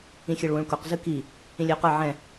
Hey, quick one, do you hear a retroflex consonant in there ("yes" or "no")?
yes